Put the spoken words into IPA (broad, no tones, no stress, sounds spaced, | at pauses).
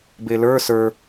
b e l ə˞ s ə˞